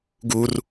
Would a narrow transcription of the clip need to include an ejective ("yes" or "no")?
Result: no